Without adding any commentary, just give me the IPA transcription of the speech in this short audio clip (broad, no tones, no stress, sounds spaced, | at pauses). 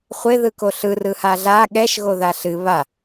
χʷ ɪ ð ɯ k o ɬ ɯ r ɯ h a ɮ a ɠ ɛ ʃ ɣ o ð a ɬ ɨ β a